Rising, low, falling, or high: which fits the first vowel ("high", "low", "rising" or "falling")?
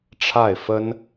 falling